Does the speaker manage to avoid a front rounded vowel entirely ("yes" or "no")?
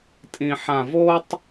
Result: yes